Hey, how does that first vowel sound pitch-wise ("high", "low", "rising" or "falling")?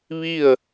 falling